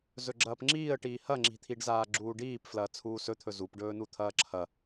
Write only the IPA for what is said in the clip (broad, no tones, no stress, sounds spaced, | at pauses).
z ɵ ɡ͡ǁ ɐː p ŋ͡ǁ iː ə̯ ʈ iː h ɐ ŋ͡ǁ i̤ t̪ʰ i ɖ z aː ɡ͡ǁ uː ɖ iː p f l ɐː t͡sʰ uː s ɵ t̪ʰ ɵ z u p ɖ ɵː n u t̪ʰ ɐː ǁʰ ɐ